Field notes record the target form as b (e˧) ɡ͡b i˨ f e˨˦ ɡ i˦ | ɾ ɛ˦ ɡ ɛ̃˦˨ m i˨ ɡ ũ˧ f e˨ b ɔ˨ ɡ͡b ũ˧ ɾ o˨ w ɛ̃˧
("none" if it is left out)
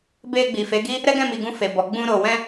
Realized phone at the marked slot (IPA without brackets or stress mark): e˧